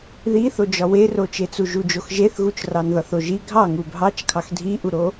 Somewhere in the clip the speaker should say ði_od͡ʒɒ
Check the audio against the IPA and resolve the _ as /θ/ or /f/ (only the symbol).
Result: θ